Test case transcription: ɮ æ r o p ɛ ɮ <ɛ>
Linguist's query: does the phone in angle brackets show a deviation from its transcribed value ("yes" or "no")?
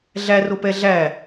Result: yes